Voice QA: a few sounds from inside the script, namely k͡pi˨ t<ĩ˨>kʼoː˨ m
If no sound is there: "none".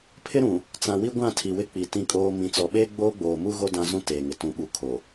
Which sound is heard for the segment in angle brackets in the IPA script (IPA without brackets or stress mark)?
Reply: ĩ˨